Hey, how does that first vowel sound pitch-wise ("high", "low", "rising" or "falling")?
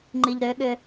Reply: low